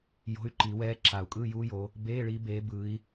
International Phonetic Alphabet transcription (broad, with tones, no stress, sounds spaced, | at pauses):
j o̤˧˥˧ y̯ ǃ i˨˩˦ w ɛː˦˥ ǁ a˨˩˦ u̯ kʼ ɯː˧˥˧ j uː˦˥ j o˨˦ | b eː˧˥˧ ɭ i˨˦ b eː˨˦ b ɯ˨˦ i̯